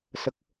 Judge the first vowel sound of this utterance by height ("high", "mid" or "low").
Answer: mid